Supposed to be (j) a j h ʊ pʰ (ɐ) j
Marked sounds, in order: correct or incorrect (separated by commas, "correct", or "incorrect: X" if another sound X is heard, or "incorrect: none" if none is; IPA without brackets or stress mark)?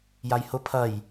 correct, correct